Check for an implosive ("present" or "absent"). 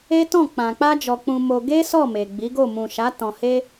absent